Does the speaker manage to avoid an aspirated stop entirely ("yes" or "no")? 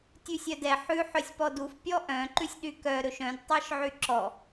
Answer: yes